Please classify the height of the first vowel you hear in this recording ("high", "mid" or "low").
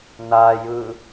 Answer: low